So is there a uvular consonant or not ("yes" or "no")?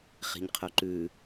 yes